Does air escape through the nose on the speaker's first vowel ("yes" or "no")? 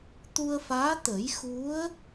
no